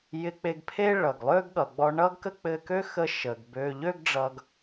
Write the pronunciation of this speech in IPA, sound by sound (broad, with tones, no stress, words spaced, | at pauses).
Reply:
jɪ˧k͡pe˧ɡpʰe˥ ɭʌ˩ɡlˠø˥ɡ ɠʌ˩ɡ͡bɔ˧ɳʌ˥ɡkə˥ k͡pɘ˧kø˥ xə˧ ʃə˩ɡbø˧ ʎø˥ɡɖ͡ʐʌ˧ɡ